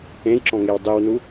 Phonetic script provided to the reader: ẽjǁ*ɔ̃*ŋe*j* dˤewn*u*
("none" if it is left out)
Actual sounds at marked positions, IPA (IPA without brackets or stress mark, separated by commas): ɔ̃, w, u